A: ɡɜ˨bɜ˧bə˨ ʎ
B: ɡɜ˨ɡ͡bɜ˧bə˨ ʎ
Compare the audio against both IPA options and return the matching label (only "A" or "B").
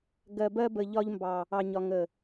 A